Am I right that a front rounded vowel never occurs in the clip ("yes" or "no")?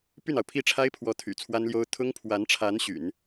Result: no